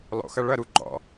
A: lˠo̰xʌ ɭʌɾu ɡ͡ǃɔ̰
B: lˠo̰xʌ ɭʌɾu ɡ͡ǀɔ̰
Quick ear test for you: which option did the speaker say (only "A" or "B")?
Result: A